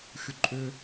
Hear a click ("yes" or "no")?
yes